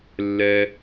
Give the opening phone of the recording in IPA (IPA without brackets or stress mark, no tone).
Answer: lː